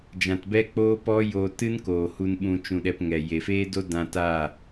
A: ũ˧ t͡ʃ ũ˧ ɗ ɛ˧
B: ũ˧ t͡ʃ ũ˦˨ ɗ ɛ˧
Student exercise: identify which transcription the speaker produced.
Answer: A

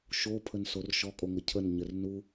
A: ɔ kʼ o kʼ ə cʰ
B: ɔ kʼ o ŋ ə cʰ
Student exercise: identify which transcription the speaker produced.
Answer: B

